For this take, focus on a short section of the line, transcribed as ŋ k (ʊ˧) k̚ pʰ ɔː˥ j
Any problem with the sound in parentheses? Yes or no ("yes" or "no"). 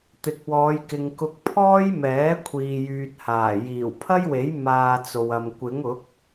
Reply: no